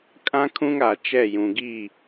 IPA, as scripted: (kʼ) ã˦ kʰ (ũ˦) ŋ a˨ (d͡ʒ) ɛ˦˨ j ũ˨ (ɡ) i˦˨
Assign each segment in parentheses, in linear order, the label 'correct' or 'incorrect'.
correct, correct, incorrect: t͡ʃ, correct

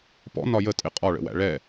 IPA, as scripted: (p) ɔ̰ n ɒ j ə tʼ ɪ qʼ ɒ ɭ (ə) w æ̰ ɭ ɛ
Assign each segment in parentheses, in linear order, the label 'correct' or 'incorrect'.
correct, incorrect: ə̰

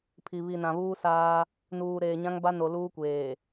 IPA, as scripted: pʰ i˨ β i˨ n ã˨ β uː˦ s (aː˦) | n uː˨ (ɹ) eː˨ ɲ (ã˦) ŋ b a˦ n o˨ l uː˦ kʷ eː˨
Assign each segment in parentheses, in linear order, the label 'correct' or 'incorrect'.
correct, incorrect: ɾ, correct

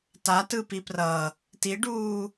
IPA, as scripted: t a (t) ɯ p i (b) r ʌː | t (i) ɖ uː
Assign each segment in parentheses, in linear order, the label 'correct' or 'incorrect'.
correct, incorrect: p, correct

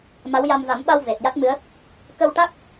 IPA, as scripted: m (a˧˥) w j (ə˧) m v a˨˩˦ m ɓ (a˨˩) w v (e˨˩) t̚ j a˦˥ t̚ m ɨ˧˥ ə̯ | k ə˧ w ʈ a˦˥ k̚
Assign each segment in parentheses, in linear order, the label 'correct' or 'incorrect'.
correct, incorrect: a˧, incorrect: a˧, correct

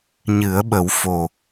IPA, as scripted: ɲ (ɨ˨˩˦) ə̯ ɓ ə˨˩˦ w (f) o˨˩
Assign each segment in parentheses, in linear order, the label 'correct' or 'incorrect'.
correct, correct

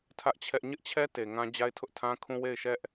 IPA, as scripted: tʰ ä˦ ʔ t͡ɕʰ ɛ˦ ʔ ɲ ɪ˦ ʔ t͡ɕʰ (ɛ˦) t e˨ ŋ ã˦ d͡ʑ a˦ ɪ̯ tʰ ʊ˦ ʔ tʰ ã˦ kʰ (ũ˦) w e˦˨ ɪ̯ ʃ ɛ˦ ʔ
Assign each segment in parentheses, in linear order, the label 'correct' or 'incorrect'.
correct, correct

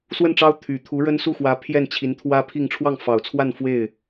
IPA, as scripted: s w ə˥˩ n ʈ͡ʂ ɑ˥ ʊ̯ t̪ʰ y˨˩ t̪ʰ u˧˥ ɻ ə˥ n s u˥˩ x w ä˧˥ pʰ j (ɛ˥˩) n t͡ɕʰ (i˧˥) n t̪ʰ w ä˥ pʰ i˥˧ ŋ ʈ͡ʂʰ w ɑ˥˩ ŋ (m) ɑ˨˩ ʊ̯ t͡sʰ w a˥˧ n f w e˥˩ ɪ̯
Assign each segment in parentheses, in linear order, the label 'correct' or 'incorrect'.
correct, correct, incorrect: f

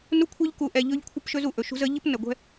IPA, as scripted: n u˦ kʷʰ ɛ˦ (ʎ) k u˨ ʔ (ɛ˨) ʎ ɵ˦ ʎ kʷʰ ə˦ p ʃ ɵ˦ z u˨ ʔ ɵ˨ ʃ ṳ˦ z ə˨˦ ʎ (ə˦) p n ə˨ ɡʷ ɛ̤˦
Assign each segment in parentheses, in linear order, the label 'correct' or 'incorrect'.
correct, correct, correct

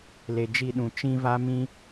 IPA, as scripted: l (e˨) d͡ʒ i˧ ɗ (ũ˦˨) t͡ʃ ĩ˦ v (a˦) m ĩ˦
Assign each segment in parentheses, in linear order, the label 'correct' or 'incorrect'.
correct, incorrect: ũ˨, correct

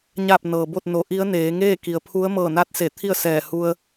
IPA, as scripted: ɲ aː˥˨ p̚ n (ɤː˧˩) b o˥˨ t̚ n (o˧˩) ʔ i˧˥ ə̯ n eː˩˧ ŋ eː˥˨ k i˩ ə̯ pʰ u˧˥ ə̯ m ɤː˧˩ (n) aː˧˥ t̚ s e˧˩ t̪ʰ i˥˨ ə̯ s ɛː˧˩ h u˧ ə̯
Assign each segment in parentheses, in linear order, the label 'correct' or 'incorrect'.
incorrect: ɤː˩, incorrect: o˩˧, correct

